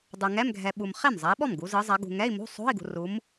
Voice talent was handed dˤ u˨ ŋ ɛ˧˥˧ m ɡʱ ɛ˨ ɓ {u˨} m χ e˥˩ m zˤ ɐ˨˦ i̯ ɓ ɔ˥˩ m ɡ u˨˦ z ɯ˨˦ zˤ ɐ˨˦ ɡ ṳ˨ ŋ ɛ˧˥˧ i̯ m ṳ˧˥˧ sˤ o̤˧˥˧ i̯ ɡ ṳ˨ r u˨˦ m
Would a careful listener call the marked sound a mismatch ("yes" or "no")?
no